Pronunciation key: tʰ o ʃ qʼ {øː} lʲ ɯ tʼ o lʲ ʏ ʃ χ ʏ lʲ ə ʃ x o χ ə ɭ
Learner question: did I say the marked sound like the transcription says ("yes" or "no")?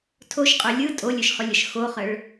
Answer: no